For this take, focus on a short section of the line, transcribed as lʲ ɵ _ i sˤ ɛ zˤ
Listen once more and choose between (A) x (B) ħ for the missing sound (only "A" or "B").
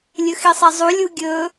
A